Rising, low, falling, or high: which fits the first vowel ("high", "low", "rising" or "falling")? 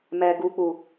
low